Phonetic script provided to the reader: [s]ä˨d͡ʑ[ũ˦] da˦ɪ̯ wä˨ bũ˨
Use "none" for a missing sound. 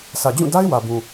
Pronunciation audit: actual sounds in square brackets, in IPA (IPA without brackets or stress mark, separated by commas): s, ũ˦˨